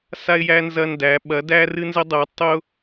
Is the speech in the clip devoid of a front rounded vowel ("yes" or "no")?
yes